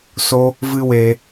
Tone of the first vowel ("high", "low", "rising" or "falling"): high